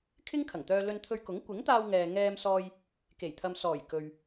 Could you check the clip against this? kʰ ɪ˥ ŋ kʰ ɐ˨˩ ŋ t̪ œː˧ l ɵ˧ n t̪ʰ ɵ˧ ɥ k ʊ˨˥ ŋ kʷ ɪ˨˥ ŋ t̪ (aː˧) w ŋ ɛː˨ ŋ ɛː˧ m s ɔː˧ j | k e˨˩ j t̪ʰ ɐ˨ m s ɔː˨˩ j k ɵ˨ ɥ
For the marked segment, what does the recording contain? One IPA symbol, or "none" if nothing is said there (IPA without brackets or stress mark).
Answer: aː˧